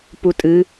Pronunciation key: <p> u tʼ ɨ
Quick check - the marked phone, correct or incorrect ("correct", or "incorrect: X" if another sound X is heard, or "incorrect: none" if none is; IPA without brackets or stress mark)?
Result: correct